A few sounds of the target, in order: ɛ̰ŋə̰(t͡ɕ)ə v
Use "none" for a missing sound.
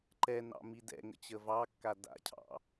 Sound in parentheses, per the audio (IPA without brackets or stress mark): t͡ɕ